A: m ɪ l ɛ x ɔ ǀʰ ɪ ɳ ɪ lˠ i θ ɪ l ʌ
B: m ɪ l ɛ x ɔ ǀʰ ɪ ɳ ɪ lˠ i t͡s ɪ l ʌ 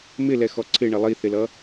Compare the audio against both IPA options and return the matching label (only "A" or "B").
A